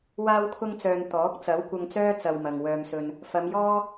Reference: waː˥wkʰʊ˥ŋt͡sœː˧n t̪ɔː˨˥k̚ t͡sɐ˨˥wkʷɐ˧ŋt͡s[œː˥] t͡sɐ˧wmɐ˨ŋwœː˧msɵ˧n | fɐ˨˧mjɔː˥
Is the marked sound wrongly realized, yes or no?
no